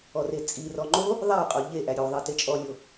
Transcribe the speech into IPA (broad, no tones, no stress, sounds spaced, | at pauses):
ɔ r e t͡sʼ i r ɔ ŋ͡ǃ o | ðˤ æ qʼ o ʎ e ʔ æ ɾʲ o ðˤ i t e t͡ʃʼ ɔ lʲ o